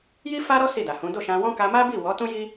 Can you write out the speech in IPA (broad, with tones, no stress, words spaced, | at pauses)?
ji˦ fa˦ɾɔ˦ si˦˨da˨hũ˨˦ do˦˨ʃã˧wɔ̃˦ ka˧ma˦bi˦˨ wɔ˨˦tũ˦ji˦